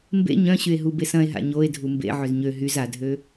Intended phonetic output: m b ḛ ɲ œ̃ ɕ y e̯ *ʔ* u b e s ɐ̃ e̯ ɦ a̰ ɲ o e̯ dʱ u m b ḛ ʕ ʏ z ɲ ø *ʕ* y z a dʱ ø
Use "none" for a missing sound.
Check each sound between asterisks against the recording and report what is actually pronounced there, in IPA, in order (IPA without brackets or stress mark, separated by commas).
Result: ɦ, ɦ